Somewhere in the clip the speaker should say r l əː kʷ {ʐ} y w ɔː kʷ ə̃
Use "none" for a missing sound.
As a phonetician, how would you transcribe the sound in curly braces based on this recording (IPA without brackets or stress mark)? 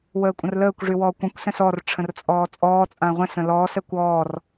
ʐ